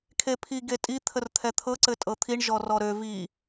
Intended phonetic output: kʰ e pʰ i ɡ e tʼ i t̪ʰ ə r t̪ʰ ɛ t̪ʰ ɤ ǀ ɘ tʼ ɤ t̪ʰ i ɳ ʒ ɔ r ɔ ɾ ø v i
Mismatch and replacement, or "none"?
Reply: none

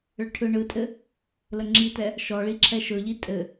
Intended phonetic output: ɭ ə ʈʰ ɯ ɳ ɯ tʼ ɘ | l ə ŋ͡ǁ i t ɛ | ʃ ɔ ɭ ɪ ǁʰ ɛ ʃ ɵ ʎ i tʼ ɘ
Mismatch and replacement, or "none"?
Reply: ɪ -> i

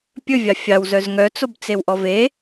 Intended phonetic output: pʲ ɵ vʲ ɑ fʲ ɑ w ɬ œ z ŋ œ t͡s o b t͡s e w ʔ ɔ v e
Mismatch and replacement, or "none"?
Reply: ɬ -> z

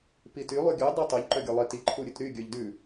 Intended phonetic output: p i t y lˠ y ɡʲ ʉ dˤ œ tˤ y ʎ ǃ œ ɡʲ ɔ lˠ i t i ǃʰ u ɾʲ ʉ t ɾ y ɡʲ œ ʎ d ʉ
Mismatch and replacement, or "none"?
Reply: none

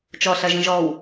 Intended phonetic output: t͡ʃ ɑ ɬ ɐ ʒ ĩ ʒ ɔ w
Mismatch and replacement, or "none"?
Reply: ɑ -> ɔ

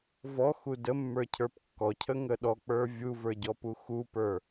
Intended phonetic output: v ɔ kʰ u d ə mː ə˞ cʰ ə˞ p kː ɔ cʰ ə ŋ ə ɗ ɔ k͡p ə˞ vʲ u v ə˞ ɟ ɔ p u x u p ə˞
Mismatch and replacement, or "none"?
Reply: kʰ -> x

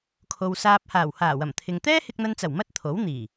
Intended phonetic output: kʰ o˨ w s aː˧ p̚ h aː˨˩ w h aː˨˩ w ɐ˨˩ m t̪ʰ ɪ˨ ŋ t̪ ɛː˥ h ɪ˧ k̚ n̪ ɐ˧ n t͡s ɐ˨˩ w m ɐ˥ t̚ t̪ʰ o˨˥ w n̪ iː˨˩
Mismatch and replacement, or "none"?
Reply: none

